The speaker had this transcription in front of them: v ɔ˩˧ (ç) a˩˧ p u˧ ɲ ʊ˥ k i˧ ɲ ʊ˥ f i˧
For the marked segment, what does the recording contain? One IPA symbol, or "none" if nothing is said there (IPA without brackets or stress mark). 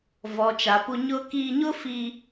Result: t͡ʃ